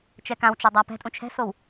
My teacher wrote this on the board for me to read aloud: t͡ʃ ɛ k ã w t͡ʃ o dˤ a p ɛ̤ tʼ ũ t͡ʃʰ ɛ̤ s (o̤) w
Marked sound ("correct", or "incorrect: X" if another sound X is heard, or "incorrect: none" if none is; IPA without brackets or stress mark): incorrect: o